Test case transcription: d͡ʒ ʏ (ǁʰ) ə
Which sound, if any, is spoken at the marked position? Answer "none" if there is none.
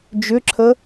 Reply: ǁʰ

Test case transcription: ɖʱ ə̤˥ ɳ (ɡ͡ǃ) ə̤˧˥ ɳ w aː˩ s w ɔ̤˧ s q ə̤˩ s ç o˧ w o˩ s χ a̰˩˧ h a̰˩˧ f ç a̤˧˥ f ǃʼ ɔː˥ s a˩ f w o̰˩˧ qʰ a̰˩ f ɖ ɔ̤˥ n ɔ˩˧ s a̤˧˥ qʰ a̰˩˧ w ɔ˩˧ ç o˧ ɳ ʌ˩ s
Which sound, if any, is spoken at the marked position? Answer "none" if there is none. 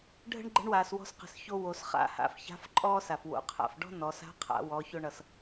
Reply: ɡ͡ǃ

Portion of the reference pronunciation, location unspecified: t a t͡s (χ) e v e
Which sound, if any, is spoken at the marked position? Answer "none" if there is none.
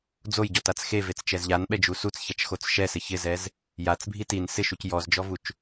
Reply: x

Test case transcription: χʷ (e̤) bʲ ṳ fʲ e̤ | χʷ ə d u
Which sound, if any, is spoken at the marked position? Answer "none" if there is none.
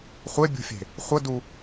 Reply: e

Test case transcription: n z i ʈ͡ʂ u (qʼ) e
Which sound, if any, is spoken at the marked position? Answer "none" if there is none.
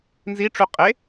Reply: qʼ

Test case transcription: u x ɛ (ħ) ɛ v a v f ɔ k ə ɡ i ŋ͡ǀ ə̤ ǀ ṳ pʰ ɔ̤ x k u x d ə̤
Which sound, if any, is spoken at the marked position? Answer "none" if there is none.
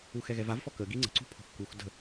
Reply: ɣ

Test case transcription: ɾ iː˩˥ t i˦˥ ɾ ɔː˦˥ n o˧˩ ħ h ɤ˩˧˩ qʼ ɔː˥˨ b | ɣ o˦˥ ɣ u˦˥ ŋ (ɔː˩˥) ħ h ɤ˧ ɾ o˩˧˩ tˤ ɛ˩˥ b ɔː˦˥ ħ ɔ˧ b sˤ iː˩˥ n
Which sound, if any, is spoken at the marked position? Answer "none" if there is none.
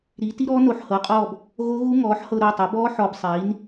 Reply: ɔː˩˥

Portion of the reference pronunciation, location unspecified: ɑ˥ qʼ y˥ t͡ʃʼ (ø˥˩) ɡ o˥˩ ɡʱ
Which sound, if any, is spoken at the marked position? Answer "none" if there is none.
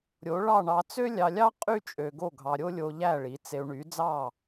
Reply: ø˧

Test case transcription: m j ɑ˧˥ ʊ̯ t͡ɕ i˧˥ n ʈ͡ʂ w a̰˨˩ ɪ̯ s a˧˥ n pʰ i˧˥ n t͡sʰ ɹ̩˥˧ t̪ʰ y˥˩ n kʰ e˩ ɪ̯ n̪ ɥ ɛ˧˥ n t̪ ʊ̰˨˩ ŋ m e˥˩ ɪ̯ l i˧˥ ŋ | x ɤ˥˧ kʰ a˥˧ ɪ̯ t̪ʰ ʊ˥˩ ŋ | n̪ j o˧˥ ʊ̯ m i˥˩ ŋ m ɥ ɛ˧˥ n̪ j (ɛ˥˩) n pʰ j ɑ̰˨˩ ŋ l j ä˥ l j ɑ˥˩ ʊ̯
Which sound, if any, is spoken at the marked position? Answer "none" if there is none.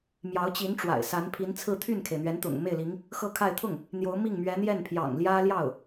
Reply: ɛ˥˩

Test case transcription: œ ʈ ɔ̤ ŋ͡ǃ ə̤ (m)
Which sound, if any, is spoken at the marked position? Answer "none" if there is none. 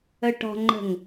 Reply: ŋ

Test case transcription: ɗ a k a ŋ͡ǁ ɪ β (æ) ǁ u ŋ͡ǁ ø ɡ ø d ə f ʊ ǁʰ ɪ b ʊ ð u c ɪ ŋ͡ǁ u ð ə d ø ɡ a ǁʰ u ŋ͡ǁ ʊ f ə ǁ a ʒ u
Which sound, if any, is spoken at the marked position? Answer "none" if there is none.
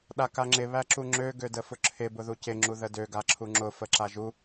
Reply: æ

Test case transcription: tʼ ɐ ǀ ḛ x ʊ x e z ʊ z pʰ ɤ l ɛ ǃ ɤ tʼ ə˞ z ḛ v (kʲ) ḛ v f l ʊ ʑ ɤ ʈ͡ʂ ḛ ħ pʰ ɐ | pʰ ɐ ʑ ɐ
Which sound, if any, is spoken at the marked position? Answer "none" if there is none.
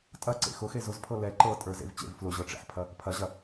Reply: t͡ɕ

